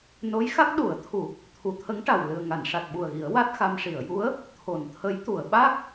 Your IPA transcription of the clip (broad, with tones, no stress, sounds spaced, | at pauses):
n o˧˥ j x a˦˥ k̚ ɗ u˨˩˦ ə̯ t̪ʰ u˨˩˦ | t̪ʰ u˨˩˦ t̪ʰ ə˧˥ ŋ ʈ a˨˩ w l ɨ˨˩ ə̯ ŋ a˨˩˨ n ʂ a˨˩ t̚ ɓ u˨˩ ə̯ ɣ i˨˩˦ ə̯ w a˦˥ t̚ x a˧ m ʂ i˨˩˨ ə̯ j u˧˥ ə̯ | t̪ʰ o˨˩˨ n t̪ʰ ə˧˥ j t̪ u˨˩˨ ə̯ ɓ a˦˥ k̚